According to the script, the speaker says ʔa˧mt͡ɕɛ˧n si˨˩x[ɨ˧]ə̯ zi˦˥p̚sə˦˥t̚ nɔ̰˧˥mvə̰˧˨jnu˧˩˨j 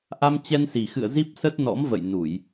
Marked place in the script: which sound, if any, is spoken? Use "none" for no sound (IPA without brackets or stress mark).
ɨ̰˧˨